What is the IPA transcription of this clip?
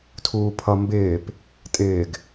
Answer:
tʰ uː pʰ ʌ m b ɪː p | tʼ ɪː ɡ

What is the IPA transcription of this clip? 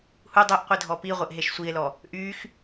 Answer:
h u dˤ e ʔ qʷ i dʱ ɔ p i ʁʷ e ʔ ɦ e ʃ sʷ i e̯ l ɔ | ʔ y x

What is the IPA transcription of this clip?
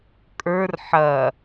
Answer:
kʼ ə˞ r ħ ɐ

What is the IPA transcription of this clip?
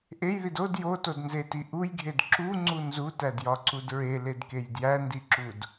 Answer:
ʔ e j ð i d o d j o t o d n z e t i ʔ u j ɡʱ e d ǁ u ŋ͡ǀ u n z u t æ d j ɒ ǀ u d ɹ e l e d k e j d j æ n d i ǁ u d

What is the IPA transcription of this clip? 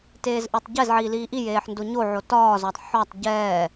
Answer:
t eː z ʔ ə˞ tˤ ɟ ɛ z ʕ iː l iː ʔ i j eː ħ n d o ɲ o ʕ o t ɒː z ɒː tˤ ħ ɒ tˤ ɟ ɛː

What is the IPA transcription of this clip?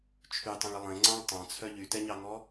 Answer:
t͡ʃʰ y tˤ ɛ̃ ɭ ə lˠ ẽ ŋ͡ǀ ɑ̃ ɭ tˤ ɑ̃ t͡sʰ œ ʎ y t ɛ ɲ ɑ ŋ ɔ

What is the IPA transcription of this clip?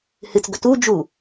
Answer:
h ɨ t͡s ɡ ɵ t u d͡ʒ u

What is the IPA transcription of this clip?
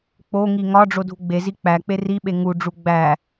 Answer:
k͡p o ŋ i ŋ ɒ ɖ͡ʐ o dʱ u ɡ͡b e z i k͡p æ k͡p e r i ɓ e ŋ u ɖ͡ʐ u ɡ͡b æ

